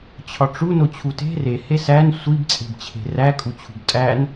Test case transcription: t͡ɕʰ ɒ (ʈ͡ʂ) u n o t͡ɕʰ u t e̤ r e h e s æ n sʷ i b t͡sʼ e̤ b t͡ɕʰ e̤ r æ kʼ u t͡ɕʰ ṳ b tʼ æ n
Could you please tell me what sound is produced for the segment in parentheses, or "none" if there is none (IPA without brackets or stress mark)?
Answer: ʈ͡ʂ